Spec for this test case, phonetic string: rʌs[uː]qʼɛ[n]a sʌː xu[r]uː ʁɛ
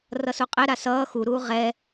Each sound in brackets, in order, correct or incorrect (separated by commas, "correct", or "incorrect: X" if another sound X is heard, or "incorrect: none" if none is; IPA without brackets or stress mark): incorrect: u, incorrect: ɾ, incorrect: ɾ